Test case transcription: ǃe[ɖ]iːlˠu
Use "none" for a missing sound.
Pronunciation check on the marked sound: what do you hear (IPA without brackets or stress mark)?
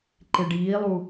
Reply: ɖ